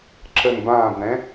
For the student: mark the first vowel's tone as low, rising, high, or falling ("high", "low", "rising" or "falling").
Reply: low